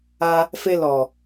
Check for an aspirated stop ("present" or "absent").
absent